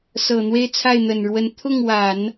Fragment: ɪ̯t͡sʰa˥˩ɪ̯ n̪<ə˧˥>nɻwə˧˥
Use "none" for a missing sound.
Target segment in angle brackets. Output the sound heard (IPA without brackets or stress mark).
ə˨˩